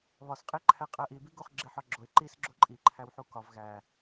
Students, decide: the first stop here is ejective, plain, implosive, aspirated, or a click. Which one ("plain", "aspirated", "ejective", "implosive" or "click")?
ejective